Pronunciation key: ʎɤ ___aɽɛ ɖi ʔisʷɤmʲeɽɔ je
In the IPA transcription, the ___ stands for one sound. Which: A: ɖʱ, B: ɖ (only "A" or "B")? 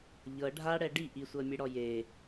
A